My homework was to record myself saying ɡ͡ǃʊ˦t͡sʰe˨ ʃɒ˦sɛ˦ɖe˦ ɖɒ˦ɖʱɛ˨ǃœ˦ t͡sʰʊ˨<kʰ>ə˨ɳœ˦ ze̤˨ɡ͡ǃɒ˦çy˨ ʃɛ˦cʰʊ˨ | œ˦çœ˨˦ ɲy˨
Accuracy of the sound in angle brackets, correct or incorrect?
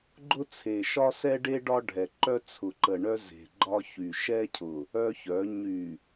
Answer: incorrect